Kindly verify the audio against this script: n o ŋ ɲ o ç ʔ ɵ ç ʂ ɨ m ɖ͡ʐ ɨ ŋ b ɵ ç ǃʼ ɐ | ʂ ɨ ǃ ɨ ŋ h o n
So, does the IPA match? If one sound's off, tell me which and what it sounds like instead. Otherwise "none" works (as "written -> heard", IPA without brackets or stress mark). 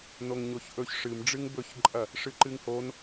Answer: none